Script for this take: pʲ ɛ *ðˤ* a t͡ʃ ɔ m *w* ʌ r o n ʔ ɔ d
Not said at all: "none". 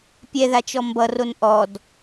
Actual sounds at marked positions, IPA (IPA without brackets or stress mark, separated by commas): ð, b